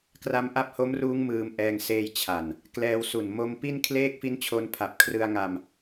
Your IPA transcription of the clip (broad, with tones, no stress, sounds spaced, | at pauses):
k r a˦˥ m ʔ a˦˥ p̚ h o˦˥ m r uː˦˥ ŋ m ɯː˧ m ʔ ɛː˧ ŋ s eː˧ j t͡ɕʰ a˨˩ n | k l ɛː˧ w s u˨˩ n m o˦˥ m p i˥˩ n kʰ l eː˥˩ k̚ f i˦˥ n t͡ɕʰ o˧ n pʰ a˨˩ p̚ kʰ r ɯ˧ a̯ ŋ a˧ m